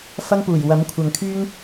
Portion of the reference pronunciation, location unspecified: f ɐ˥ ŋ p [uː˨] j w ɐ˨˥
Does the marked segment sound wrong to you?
yes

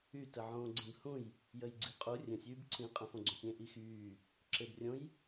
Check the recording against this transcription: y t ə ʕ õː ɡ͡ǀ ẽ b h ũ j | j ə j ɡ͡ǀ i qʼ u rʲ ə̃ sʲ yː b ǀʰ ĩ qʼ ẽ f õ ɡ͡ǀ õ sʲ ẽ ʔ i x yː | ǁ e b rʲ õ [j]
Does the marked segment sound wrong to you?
no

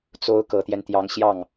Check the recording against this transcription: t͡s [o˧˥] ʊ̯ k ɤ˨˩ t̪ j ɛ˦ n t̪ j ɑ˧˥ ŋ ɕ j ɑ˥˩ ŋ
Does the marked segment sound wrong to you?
no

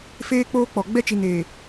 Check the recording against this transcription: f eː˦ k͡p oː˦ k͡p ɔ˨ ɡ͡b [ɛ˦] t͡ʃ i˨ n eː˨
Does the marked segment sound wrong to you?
no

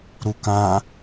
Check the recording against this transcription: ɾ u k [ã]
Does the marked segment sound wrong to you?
no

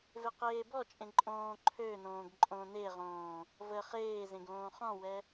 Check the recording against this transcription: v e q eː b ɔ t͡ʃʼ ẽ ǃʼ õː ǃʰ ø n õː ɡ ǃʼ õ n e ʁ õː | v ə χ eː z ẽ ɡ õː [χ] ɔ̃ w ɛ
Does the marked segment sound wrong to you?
no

